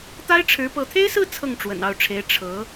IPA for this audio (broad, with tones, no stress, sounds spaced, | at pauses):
t̪ a˥ ɪ̯ ʈ͡ʂʰ ɻ̩˧˥ p ɤ˧˥ t̪ʰ e˥ ɪ̯ s ɹ̩˥˧ t͡sʰ ɤ˥˩ ŋ ʈ͡ʂ w ə̰˨˩ n ɑ˥˩ ʊ̯ ʈ͡ʂʰ e˧˥ ɪ̯ ʈ͡ʂʰ ɤ˧˥